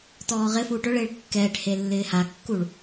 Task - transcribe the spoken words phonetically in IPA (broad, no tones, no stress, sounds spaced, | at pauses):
t ɔː ʁ ɪ f uː ʈ ʊ ɭ ɪː ɭ kː ɛː ʈ h e lː ɪː h a kː u ɭ